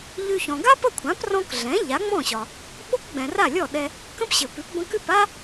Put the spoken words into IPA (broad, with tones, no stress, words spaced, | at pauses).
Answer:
ʎʉ˧çɔ̃˩ ɡa˥pə˥˩kʷʰã˩˥p rɔ̃˥k ɮɛ̃˩˥ ʎa˩˥ŋ͡mɔ̃˥˩ɕɒ˩ | ɓo˥kɡ͡bɛ̃˩ ra˥˩lʲɔ˥˩ɗɛ˧ | kə̃˥pɕɘ˩pʉ˩˥p bə̃˧kʉ˥˩pa˥